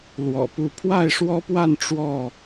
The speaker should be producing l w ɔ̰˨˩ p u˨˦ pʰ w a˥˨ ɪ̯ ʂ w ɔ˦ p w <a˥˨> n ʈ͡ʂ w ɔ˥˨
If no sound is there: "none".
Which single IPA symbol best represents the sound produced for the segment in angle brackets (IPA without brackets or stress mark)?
a˥˨